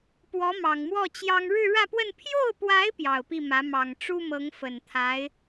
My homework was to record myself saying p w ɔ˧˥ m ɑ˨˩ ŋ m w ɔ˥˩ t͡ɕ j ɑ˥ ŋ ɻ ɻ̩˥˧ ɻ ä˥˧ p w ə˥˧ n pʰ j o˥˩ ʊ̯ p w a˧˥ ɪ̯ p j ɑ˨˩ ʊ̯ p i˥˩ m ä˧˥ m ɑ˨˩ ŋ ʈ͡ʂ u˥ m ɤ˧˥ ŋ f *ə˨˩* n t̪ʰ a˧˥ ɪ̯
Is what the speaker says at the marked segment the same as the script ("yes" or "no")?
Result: yes